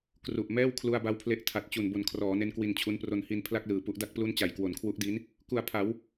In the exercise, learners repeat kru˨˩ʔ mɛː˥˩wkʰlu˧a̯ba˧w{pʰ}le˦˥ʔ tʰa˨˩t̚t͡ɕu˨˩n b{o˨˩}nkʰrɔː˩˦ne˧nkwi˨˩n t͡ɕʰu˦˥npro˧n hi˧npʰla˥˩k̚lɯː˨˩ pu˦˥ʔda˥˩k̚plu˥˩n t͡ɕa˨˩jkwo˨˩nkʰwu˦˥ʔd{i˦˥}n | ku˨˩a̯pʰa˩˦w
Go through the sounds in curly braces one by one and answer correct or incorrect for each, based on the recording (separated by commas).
correct, correct, correct